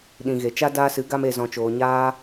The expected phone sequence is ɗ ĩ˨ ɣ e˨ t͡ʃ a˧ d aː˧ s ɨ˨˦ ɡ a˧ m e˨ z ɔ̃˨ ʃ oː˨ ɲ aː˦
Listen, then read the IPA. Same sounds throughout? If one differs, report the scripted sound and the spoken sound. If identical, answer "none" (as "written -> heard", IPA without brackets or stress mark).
ʃ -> t͡ʃ